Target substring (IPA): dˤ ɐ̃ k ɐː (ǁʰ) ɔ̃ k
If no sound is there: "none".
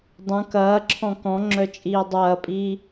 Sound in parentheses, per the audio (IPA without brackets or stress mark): ǁʰ